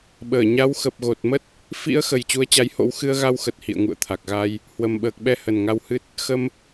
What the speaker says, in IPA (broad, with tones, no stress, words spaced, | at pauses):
ɓəː˧˩ ɲa˨˦wxə˨˩p̚ ɣo˨˩t̚mə˦˥t̚ | fḭ˧˥ə̯ xə˨˩j t͡ɕu˨˦ə̯t͡ɕa˨˦j ho̰˧˥w xɨ˧ə̯ɣa˧wxə˨˩t̚ hḭ˧˨ə̯ŋṵ˧˨ə̯t̪ʰa˨˩k̚ɣa˧j | hwə˨˩mɓəː˨˩k̚ɓɛ˧ hə˨˩nŋa˧whɨ˦˥t̚ | xə˧m